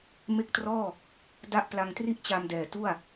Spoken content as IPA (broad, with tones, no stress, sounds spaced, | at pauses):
m e˦˥ k̚ t r ɔː˥˩ | d a˦˥ ʔ p l a˧ ŋ t r i˥˩ ʔ t͡ɕ a˧ m d ɛː˨˩ t u˥˩ a̯